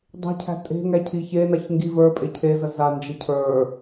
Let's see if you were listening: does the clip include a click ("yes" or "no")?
no